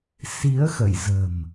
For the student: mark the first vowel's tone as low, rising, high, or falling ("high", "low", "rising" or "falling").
rising